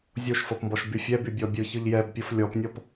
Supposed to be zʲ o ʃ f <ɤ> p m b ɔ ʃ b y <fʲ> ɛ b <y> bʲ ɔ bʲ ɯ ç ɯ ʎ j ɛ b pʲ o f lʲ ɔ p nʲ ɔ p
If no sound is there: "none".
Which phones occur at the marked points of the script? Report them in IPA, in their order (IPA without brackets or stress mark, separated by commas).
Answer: ɤ, fʲ, y